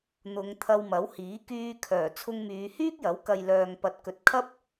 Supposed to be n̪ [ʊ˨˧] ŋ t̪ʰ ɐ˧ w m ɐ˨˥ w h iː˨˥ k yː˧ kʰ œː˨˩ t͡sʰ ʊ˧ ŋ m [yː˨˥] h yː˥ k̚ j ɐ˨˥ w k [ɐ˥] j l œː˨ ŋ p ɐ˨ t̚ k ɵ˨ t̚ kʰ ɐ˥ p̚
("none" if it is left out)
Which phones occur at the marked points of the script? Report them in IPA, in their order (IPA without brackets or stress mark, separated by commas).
ʊ˨˧, yː˨˧, ɐ˨